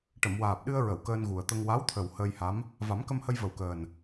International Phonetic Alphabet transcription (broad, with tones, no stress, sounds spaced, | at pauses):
ʈ ə˨˩˨ m w aː˨˩ p̚ ɗ ɨ˧ ə̯ ɹ ə˨˩˨ w k əː˧ n ɣ u˨˩ ə̯ t̪ ə˧ ŋ w a˧˥ w t̪ʰ ə˨˩ w h əː˧ j h a˧˥ m | v a˨˩˦ m k ə˧ m h ə˧ j v ə˨˩ w k əː˨˩ n